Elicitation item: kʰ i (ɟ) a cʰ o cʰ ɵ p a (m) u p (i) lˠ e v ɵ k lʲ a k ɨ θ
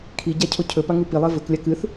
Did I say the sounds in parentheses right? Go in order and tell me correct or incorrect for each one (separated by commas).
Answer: correct, incorrect, correct